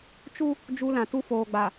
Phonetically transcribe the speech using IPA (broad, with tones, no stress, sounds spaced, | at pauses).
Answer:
t͡ʃ u˦ | d͡ʒ u˦ l ã˨ t u˦ f oː˨ ɡ͡b a˨